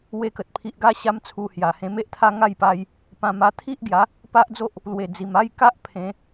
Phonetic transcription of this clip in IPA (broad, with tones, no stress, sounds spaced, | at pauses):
w e˧ k ə˨ t̚ pʰ i˨ ʔ ɡ a˧ ɕ a˦ m t͡sʰ u˧ h j a˨˩ h ẽ˧ m e˦ ʔ t̪ʰ a˦ ŋ a˥˧ j p a˧ j | p ã˧ m a˧ t̪ʰ i˦ ʔ ɡ j a˨˦ | p a˦ ʔ d͡z o˦ ʔ | l w e˨˩ d͡z i˨˩ m a˦ j k a˦ ʔ pʰ ẽ˨˦